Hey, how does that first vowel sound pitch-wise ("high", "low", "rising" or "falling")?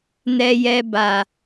high